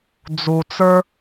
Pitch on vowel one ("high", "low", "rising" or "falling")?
low